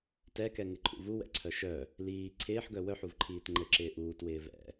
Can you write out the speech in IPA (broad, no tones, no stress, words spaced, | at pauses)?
tɛkɛŋɪǃʰṵ vuwɛ̰ǀʰœ ʃœ | liː ǀʰɪːħɡœ wœħuvǃʰiːt ŋ͡ǃɘǁɪː ʔuːtwɪː vɛ̰